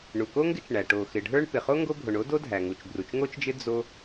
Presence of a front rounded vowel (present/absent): absent